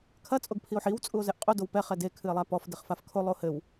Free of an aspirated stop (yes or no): no